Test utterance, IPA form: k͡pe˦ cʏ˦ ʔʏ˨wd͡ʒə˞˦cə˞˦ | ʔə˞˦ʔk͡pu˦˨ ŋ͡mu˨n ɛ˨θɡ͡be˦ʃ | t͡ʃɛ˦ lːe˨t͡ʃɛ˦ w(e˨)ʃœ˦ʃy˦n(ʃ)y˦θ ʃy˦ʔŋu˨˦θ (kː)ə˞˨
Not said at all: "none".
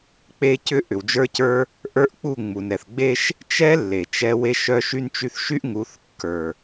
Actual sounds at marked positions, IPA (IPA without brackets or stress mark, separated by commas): e˦, t͡ʃ, kː